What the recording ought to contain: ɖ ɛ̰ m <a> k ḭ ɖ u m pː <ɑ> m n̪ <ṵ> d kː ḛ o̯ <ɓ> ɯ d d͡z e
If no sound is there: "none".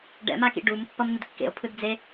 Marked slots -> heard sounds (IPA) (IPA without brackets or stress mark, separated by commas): a, ʌ, u, pʰ